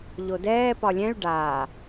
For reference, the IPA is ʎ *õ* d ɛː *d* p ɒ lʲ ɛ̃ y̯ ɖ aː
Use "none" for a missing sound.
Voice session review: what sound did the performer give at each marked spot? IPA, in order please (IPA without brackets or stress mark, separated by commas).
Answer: o, none